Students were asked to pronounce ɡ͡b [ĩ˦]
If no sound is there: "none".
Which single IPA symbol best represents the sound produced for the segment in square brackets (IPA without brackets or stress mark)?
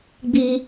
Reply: i˦